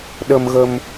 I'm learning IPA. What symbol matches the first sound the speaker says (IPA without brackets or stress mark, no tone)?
ɗ